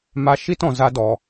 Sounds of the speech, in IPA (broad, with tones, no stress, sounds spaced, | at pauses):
m a˧ ʃ i˦ t ɔ̃˨ z a˧ d ɔ˨